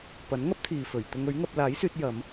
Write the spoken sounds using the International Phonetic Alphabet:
pɐ˨˥nŋɐ˥p̚t̪ʰiː˨ fɵ˨˩ɥ t̪ʊ˧ŋɵ˨˥ɥŋɐ˧p̚ laː˨˥jsyː˧t̚ jɐ˨˧m

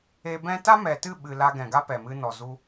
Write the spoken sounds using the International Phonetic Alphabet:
e˧bɛ̃˦ ta˦mɛ˨tɨ˦˨ɓɨ˨ la˧ɡɛ̃˨ ɡa˦pɛ˨mɨ˧nɔ˨ zu˧

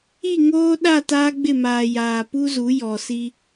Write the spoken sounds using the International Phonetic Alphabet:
i˦˨ŋoː˦ ɗa˦˨ taː˦ɡ͡bɪ˦˨maː˨ jaː˨pu˦zu˨˦ jɔ˨si˦

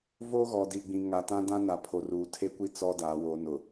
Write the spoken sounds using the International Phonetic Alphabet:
vo˦ɣɔ˨di˨ɡ͡bĩ˨ ŋa˨tã˦ dã˦na˨ pʰo˨ ruː˨tʰe˦kʷi˦ t͡sɔ˦daː˨˦wo˨˦ nʊ˨

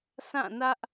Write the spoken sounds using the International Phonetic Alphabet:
sʰã˦˨nä˦ʔ

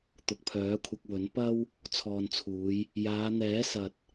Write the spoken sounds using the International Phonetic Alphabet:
t̪ʊ˨k̚pʰœː˨˥kʷʰɐ˧k̚ wɵ˨˥n pɐ˥w | t͡sʰɔː˨nt͡sʰuː˨˧j | jaː˨˧n̪ɛː˨˥sɐ˨t̚

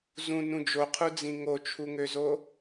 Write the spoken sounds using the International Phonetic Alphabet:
zũ nũd͡ʒoqʰud͡zĩ ŋot͡ʃʰuŋøzo

